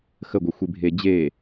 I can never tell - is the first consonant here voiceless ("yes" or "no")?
yes